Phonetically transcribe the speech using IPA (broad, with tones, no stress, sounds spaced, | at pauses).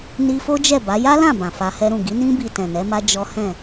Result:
n i˧ f o˦ d͡ʒ ɛ˦˨ b a˨˦ j a˦ l ã˦˨ b ã˨ f a˧ h ɛ˦ ɾ ũ˦˨ ɡ i˨˦ n ĩ˦ b i˧ t ɛ̃˨ n ɛ˨˦ m a˦ d͡ʒ ɔ˦ h ɛ̃˦˨